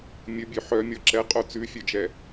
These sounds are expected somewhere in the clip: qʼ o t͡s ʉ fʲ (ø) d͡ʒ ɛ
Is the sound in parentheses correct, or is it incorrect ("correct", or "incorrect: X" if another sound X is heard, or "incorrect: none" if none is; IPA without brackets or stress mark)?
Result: incorrect: œ